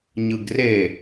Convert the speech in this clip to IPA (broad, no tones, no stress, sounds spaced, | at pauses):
ɲ ɯ ɡ r e